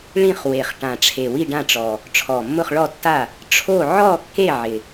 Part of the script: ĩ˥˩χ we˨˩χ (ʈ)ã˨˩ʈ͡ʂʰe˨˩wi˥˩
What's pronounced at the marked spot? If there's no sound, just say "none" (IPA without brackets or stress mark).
ʈ